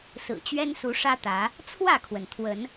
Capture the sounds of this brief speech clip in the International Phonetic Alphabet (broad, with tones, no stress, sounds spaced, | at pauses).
s ɹ̩˨˩ t͡ɕ ɥ ɛ˦ n s u˨˦ ʂ ä˦ t̪ ä˨˦ | t͡sʰ w ä˥˨ kʰ w ə˩ n t̪ʰ w ə˨˦ n